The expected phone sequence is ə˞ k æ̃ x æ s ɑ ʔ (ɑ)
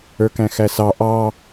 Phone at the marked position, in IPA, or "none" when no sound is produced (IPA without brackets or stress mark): ɑ